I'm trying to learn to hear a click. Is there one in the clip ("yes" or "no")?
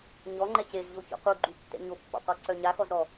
yes